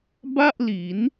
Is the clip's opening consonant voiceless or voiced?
voiced